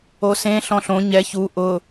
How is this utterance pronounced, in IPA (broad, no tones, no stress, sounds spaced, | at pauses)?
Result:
o s ẽ ɬ ɔ̃ ɬ õ ɲ ɛ ç u ʔ ʊ